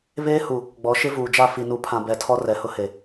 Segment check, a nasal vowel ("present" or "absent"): present